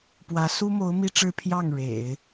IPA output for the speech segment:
p w ä˧˥ s u˥ m o˧˥ ʊ̯ m i˥ ʈ͡ʂ ɻ̩˥ pʰ j ɑ˥˩ ŋ ɻ ḛ˨˩˦ ɪ̯

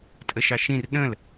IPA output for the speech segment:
tʼ ə ʃ ɑ ʃ ĩ r ɗ ə̃ l

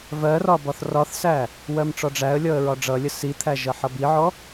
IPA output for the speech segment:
v ɜ r ɒ b ɒ θ r ɒ θ s æ | w ɜ m ʈ͡ʂ ɔ ɖ͡ʐ æ ə̯ lʲ ɔ ə̯ ɹ ɒ ɖ͡ʐ ʌ lʲ ə s i t̪ʰ æ ʒ ʌ ħ ʌ b i ʕ ɔ

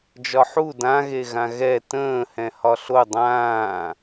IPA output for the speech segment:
d͡ʒ ɒ ħ u d ã ɣ e ɣ ã ɣ ɛ t ə̃ː h ɛ̃ h ɒ ɬ o dˤ ãː

